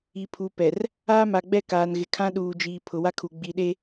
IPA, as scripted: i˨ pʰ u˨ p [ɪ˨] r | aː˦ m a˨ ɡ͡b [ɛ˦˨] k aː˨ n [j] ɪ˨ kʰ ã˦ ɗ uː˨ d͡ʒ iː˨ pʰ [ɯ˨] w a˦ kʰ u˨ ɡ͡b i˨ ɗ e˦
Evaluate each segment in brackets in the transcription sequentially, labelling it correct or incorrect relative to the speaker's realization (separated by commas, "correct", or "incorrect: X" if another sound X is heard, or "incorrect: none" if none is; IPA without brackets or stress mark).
incorrect: ɛ˨, correct, incorrect: ɣ, incorrect: ʊ˨